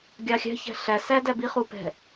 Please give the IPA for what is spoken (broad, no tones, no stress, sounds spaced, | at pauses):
ɡʲ ɑ xʲ æ̤ ç æ̤ ɬ æ s æ d æ b i χ u p ɛ̤